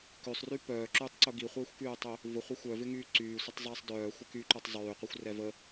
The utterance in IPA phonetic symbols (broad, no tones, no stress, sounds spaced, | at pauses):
k ø sˤ r y p œː ǁ yː tˤ ǀ ʊ ɡ i χʷ ɪː xʷ k yː tˤ ø | v ʊ χʷ ɛ xʷ œ v ɪ ŋ yː ǀ yː sʷ ə tˤ zˤ ɪː sˤ d œː xʷ ɪ k y ǃ y tˤ zˤ yː qʷ i xʷ r ɛ v ə